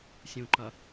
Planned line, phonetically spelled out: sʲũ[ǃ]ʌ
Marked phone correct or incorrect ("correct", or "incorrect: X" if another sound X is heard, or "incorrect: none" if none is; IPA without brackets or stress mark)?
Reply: correct